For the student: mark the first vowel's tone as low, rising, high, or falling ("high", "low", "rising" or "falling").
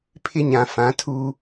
high